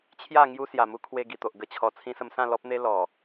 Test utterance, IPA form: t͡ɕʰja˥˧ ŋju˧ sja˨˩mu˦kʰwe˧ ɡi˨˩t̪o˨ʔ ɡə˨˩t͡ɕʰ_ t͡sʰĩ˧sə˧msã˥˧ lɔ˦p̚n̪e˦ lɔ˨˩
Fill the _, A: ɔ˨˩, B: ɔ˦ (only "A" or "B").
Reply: A